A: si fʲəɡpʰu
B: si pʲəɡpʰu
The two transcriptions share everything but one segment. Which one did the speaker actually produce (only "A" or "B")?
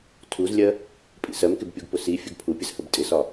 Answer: A